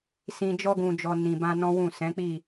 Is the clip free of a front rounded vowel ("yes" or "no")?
yes